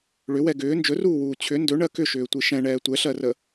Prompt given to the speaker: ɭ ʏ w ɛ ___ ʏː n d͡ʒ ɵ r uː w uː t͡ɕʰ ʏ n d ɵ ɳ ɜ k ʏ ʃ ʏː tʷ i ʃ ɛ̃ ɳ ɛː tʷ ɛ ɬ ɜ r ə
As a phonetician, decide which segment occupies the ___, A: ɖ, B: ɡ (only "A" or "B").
B